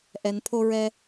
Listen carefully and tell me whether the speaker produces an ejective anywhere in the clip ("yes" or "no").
no